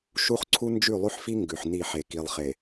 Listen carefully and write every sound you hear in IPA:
ʃ u˦ χ ǀʰ u˦ n d͡ʒ ʉ˦˨ lˠ ʉ˦ ħ f i˦ ŋ ɡ ʉ˨ ħ n i˦˨ ħ e˨ k i˨ lˠ χ e˨

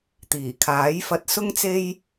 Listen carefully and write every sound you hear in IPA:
t̪ iː˨˩ kʰ aː˨˥ j f ɐ˧ t̚ s ʊ˥ ŋ t͡s e˥ j

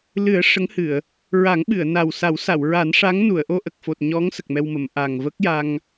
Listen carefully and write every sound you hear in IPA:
l ɨ˨˩˦ ə̯ ʂ ə˧˥ ŋ h ɨ˨˩˨ ə̯ | ɹ a˨˩˦ ŋ ɓ ɨ˨˩˨ ə̯ n a˨˩ w s a˨˩˦ w s a˨˩˨ w ɹ a˨˩˦ n ʂ a˧˥ ŋ n u˨˩˨ ə̯ ʔ o˧ ʔ ə˨˩ k̚ f o˨˩ t̚ ɲ ɔ˧˥ ŋ s ə˨˩ k̚ m ɛ˧ w m ə˨˩˨ m ʔ a˨˩ ŋ v ə˦˥ k̚ j a˧ ŋ

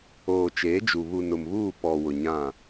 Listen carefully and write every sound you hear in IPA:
oː˨ t͡ʃ eː˨˦ d͡ʒ u˨ β u˨ n ʊ˨ m β uː˦˨ p ɔ˨ w ʊ˨ ɲ ã˦˨

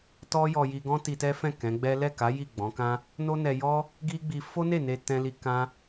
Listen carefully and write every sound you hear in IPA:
t ɔ˦ j ɔ˧ j i˧ ɡ ɔ̃˦ t i˧ t ɛ˦ f ɛ̃˦˨ k ɛ̃˨˦ ɡ͡b ɛ˦ l ɛ˦˨ k a˨˦ j i˦˨ ɡ͡b ɔ̃˨˦ k ã˦ | n o˦ n ɛ˧ j ɔ˦ | ɡ i˦ ɡ͡b i˧ f o˦ n e˦˨ n e˧ t ɛ̃˧ l i˧ k ã˦

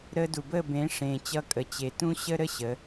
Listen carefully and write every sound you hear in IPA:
ɾ əː˧ d u˨ b əː˦˨ b ẽː˨˦ ʂ ẽː˨ t͡ɕ ʌ˧ kʼ ə˨ t͡ɕ e˨ t ũ˦ ɕ ə˦ ɾ ə˦ ɕ ə˨˦

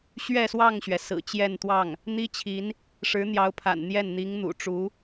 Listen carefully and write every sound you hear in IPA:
ɕ ɥ ɛ˥˧ s w ɑ˥˩ ŋ ɕ ɥ ɛ˩ s ɹ̩˨˩ t͡ɕ j ɛ˥˧ n t̪ w ɑ˥˩ ŋ | n̪ i˥ t͡ɕʰ i˧˥ n | ʂ ɻ̩˧˥ n̪ j ɑ˧˥ ʊ̯ pʰ a̰˨˩ n n̪ j ɛ˥˩ n n̪ i˧˥ ŋ n̪ ṵ˨˩ ʈ͡ʂ u˧˥

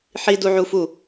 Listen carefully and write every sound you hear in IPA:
ħ i d u ʕ u f u

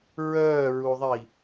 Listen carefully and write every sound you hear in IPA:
ɹ œː ɹ u ðˤ i

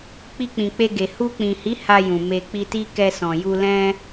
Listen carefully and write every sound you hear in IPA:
k͡p i˧ k͡p ĩ˨ k͡p e˧ ɡ e˨ h u˧ k͡p ĩ˨ h i˨˦ h a˧ j ũ˨ m e˨ k͡p i˧ t i˦ k ɛ˧ s ɔ̃˨ j u˧ l ɛ̃˦

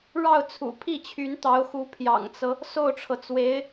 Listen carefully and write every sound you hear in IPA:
ɻ ɑ˥˩ ʊ̯ t͡sʰ ṵ˨˩ pʰ i˥˩ t͡ɕʰ y˧˥ n t̪ ɑ˧˥ ʊ̯ x u˧˥ pʰ j ɑ̰˨˩ ŋ t͡s ɤ˦ | s o˥˩ ʊ̯ ʈ͡ʂʰ ɤ˩ t͡s w e˧˥ ɪ̯

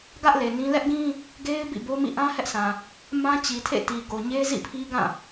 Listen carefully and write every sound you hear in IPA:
ɡ ä˦ ʔ l e˨ n ĩ˦ l ɛ˦ ʔ ɡ ĩ˦ | ɡ e˦ ɪ̯ b ḭ˦˨ b o˦ m ḭ˦˨ ʔ ã˦ h ɛ˦ ʔ sʰ ã˨ | m ã˦ t͡ɕ i˨ tʰ ḛ˦˨ t i˨ ɡ o˨ ɲ e˦ z ḭ˦˨ pʰ i˦ ɡ ã˦˨

